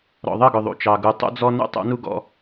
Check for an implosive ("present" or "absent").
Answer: absent